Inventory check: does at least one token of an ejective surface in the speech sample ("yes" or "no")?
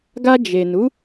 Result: no